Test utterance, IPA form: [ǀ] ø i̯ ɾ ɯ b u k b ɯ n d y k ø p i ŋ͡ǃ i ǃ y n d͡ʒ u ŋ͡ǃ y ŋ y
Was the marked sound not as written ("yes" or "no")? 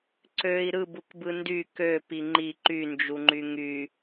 no